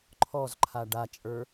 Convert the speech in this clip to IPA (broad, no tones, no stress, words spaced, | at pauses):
ǃʰɔzǃʰa ɖat͡ʃʼə˞